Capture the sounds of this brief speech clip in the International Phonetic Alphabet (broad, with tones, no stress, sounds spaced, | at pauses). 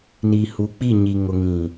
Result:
n iː˨ h u˨˦ k͡p i˦˨ ɲ i˨ ŋ ʊ˨ ŋ ĩ˨